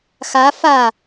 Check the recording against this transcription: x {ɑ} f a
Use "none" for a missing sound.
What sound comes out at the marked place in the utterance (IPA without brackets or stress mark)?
a